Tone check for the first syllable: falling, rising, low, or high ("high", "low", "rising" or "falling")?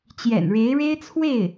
low